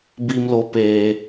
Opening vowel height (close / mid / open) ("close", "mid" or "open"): close